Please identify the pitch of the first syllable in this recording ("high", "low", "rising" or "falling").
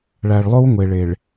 low